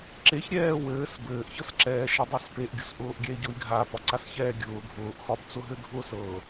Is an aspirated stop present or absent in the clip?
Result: absent